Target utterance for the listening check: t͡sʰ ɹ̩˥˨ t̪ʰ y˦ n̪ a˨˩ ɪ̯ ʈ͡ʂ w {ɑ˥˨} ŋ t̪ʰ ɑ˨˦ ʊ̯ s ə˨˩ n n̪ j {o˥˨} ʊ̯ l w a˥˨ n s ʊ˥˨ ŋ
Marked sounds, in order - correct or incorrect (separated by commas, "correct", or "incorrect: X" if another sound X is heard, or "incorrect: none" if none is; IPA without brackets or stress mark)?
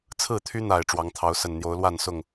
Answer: incorrect: ɑ˨˦, incorrect: o˨˦